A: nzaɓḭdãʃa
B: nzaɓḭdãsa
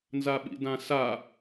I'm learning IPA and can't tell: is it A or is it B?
B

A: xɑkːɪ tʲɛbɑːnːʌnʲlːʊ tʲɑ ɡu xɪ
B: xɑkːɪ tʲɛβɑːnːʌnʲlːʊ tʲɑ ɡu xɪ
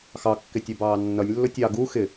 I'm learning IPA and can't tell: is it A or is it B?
A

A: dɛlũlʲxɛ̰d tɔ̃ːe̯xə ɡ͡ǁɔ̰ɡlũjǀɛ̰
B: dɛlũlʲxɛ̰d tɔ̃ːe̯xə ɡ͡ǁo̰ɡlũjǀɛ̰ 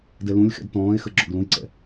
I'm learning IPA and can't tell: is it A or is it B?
A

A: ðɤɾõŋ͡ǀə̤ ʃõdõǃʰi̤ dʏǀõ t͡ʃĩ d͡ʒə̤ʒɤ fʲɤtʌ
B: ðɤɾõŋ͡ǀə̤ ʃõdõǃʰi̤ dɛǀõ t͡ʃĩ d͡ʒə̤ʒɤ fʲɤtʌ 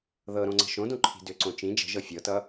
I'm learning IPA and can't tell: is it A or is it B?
A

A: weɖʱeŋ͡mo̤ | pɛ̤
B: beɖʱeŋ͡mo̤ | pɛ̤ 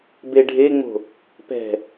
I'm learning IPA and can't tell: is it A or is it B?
B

